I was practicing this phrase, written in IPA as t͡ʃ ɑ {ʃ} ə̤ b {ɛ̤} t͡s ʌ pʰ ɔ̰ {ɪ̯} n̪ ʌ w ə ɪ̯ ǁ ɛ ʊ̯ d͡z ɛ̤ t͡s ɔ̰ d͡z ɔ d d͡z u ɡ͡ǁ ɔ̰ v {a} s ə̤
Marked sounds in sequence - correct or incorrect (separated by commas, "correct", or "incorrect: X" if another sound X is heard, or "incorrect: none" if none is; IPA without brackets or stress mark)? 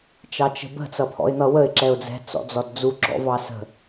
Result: incorrect: t͡ʃ, incorrect: ə̤, correct, incorrect: ɑ